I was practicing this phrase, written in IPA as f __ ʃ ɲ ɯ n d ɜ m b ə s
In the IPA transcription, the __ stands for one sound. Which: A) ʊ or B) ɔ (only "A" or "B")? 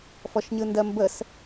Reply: B